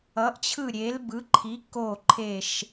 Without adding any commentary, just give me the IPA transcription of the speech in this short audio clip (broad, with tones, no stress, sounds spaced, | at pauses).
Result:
ʌ˨˥ ʔ t͡ɕʰ ɯ˦˨ ɾʲ e˨˥ l b ɯ˨˥ ǃʰ i˨˥ k o˦˨ ǃʰ e˦˨ ʃ